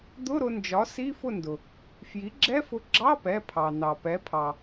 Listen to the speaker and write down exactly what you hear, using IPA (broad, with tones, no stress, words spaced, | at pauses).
d̪ʊ˧˥˧ɾʊ˧nd͡ʒɒ˩˥ si˧˥˧fʊ˥˨ndʊ˩ | fji˩˥ɡ͡ǁɛ˧˥˧fʊ˧ ɡ͡ǁɑ˧˥˧pɛ˩˧˩pʰɑ˩ nɑ˩pɛ˩˥pʰɑ˩